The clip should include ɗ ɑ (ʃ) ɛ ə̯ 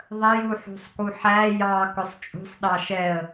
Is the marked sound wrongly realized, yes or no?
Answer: no